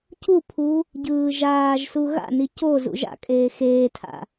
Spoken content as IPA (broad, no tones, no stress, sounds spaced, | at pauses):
c u pʰ u | ɟ ɯː ʒ aː ʒ s u ɣ a̰ n i c o z ṵ ʒ a̰ kʼ eː x eː tʰ a̰